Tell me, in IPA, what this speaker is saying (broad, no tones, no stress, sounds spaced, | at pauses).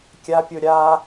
kʲ a pʲ o ɾʲ a